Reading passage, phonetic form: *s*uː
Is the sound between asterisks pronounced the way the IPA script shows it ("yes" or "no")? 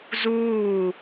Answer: no